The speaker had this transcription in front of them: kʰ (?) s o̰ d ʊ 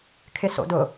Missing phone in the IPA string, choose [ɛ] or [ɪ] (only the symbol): ɪ